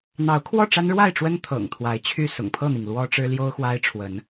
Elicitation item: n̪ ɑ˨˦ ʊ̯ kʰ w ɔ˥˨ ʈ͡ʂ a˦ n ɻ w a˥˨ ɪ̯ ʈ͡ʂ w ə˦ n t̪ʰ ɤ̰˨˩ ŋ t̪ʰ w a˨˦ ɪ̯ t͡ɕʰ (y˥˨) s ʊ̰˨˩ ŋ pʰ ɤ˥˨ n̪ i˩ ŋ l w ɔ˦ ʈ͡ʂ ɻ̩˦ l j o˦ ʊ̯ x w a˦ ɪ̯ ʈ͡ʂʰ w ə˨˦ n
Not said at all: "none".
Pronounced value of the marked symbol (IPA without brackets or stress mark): y˥˨